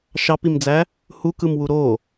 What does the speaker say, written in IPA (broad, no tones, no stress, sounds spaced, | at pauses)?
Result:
ʃ ɑ p i m d͡z æ | h u k ɯ m w u ɾ o